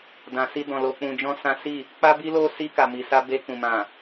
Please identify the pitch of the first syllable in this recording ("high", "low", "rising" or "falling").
low